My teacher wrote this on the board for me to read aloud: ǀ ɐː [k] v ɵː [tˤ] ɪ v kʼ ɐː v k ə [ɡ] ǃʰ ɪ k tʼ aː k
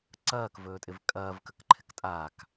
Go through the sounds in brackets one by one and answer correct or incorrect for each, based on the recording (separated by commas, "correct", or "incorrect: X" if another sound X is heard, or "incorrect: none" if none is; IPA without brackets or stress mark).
correct, incorrect: tʼ, incorrect: k